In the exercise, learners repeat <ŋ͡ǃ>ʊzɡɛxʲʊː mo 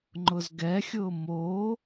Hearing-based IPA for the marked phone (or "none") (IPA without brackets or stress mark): ŋ͡ǃ